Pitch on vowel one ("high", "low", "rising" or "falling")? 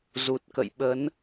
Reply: low